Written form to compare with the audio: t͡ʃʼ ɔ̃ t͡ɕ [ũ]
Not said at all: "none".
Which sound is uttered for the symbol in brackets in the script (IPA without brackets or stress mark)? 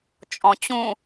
ũ